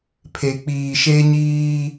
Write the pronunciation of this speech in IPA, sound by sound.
pʰe˨k͡piː˨ʃe˦ ɲiː˦

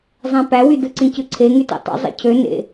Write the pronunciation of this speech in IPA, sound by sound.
zˤæ̃pæwydɯ ǀĩcɯǀʰe ŋytḛtˤṵ zˤḛcʰø nḛ

